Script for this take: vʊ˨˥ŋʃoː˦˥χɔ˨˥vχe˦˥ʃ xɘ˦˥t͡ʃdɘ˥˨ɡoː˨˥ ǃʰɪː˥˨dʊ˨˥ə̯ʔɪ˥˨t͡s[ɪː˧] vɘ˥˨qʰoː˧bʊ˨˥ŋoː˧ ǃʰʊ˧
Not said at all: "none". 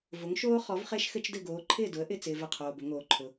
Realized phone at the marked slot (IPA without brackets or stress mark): ɪː˧